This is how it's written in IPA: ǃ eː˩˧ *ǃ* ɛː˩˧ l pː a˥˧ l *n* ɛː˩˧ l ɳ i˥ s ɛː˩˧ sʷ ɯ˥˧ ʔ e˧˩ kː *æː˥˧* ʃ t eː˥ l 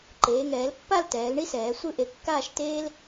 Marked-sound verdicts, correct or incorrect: incorrect: ŋ, incorrect: t, incorrect: aː˥˧

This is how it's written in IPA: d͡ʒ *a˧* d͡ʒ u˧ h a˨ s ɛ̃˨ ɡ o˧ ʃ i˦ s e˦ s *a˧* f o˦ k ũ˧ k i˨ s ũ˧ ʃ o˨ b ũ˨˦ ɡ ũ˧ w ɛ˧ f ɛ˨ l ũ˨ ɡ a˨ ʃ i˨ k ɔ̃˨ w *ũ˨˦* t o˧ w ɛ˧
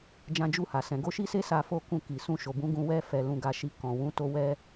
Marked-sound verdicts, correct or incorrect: incorrect: ã˧, correct, correct

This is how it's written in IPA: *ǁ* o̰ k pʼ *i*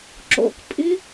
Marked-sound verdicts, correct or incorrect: correct, correct

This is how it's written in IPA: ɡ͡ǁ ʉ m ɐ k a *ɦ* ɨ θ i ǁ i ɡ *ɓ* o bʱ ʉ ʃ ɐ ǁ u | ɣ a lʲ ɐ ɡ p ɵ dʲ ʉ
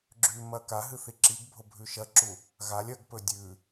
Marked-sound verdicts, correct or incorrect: correct, incorrect: bʱ

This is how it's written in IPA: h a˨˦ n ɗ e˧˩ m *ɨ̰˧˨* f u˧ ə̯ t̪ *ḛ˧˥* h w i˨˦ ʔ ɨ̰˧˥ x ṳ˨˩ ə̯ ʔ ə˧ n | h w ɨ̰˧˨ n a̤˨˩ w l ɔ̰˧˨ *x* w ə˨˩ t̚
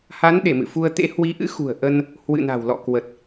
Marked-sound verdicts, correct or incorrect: correct, correct, incorrect: k

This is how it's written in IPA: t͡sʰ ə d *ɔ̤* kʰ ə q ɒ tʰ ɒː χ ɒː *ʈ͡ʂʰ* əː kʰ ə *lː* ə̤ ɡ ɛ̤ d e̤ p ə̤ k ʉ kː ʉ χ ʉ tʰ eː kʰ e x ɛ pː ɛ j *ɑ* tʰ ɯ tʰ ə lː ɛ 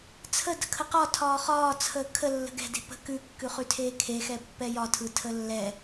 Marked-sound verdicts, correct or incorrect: incorrect: ə̤, incorrect: t͡sʰ, correct, incorrect: ɒ

